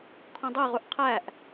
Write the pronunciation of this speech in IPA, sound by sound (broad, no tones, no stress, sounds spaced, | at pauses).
kʰ õ dˤ e ʁ u ʔ qʰ æ ʔ